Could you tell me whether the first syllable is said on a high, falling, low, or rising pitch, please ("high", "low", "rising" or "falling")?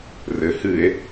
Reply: low